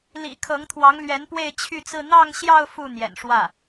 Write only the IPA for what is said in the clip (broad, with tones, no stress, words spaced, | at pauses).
lḭ˨˩ kʰɤ˧˥ŋt̪ʰwɑ˧˥ŋlɥɛ˧˥n pwe˥˧ɪ̯t͡ɕʰy˥˧t͡sɹ̩˥˧ n̪ɑ˥˧ŋɕjɑ˥˧ʊ̯ fu˥˩n̪jɛ̰˨˩nʂwä˥˩